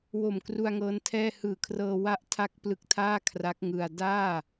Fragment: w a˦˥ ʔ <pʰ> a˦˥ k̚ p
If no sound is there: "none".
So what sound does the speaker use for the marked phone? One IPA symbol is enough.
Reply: tʰ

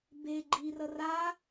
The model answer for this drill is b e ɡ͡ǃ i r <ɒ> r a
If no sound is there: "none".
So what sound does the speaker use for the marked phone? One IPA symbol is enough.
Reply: ʌ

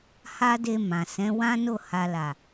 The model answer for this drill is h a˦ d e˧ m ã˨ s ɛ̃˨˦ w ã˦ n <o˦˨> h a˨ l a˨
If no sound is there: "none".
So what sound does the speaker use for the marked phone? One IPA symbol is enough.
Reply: o˦˨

